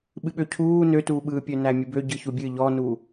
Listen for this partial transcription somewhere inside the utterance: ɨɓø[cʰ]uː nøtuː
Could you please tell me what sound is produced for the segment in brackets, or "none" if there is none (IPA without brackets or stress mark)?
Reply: cʰ